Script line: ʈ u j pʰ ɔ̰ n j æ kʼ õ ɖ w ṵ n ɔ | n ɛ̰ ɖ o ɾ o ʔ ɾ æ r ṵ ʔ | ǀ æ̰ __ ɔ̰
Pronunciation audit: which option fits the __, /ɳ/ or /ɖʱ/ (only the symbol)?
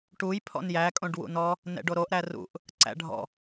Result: ɖʱ